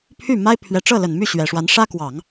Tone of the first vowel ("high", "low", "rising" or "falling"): falling